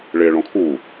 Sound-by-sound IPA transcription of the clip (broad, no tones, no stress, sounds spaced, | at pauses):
ɭ e ɭ ɔ̃ kʰ u